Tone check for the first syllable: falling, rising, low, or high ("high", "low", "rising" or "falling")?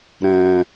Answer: low